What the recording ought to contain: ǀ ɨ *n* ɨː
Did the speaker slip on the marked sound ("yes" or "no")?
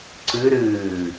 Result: yes